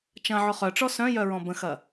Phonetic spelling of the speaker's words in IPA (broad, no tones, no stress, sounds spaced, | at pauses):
t͡ʃ ɐ̃ ʕ ʊ χ œ ʈ͡ʂ ɔ s œ̃ j œ ɹ ɔ̃ b ə̃ x ɐ